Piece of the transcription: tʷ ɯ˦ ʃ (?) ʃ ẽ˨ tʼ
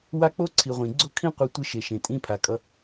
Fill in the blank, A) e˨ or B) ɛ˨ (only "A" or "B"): A